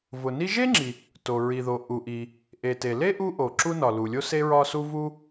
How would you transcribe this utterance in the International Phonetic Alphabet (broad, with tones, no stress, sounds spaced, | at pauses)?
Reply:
v ʊ˩ n i˥ ʒ e˥ ŋ͡ǁ i˩ | t o˩ ɹ i˩ ð o˩ ʔ u˩ ʔ i˩ | ʔ e˩ t e˩ l e˥ ʔ u˥ ʔ o˩ ǁ u˥ n ɒ˩ l u˩ lʲ o˥ s e˥ ɹ ɒ˥ s u˥ v u˥